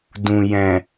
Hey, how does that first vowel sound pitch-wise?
low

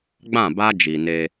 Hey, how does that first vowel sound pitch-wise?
falling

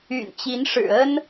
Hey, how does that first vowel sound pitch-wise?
low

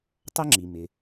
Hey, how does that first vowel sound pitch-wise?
high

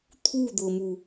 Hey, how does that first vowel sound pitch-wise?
falling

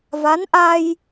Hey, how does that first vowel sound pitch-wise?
rising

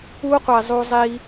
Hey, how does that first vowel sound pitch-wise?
high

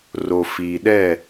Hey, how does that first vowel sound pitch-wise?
low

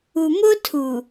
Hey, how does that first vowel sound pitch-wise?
low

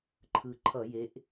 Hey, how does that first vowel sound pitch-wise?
low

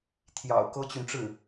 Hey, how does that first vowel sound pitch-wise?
low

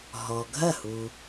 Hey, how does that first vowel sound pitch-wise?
low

